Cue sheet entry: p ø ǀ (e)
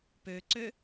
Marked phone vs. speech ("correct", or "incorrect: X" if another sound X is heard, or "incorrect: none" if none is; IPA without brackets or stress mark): incorrect: ø